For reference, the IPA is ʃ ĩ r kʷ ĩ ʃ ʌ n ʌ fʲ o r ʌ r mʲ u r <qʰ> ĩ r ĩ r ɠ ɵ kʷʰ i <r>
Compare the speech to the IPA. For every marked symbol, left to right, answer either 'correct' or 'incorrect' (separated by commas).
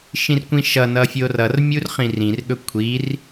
incorrect, correct